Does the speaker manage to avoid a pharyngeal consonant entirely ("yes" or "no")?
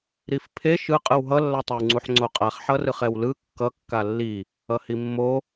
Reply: no